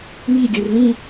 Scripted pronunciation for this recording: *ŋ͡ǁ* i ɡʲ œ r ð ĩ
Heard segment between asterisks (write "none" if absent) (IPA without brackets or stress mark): ŋ